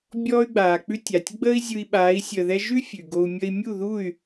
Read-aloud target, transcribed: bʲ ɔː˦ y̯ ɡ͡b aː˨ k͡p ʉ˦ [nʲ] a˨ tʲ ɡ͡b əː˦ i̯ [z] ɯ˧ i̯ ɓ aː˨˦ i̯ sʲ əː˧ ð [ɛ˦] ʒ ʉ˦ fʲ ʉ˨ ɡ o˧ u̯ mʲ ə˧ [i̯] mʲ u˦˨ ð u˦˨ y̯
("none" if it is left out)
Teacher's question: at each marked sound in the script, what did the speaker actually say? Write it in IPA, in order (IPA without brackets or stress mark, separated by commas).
tʲ, zʲ, ɛ˦, i̯